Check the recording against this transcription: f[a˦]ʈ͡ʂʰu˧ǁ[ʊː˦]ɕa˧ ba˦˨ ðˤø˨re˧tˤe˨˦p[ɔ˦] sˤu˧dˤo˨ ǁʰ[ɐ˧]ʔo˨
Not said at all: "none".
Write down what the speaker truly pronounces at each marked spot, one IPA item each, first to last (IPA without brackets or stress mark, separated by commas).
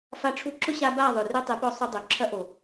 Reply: a˧, ʊ˦, ɔ˧, ɐ˧